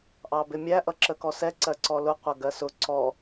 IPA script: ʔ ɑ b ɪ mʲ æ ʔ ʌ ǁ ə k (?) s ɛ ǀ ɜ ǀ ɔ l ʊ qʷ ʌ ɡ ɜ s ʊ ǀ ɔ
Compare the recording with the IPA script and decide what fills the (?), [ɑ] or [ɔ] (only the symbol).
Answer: ɔ